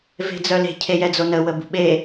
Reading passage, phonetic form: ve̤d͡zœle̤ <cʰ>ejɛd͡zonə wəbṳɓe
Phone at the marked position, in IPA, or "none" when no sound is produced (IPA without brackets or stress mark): cʰ